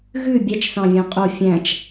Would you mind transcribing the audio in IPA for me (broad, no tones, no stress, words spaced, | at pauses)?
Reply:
ɣʉ bʲɛt͡ʃθɑ̃vʲɑ̃ qʼo fʲæ̃t͡ʃ